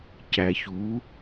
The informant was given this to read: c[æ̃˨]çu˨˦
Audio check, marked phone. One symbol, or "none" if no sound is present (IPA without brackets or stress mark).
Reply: æ˨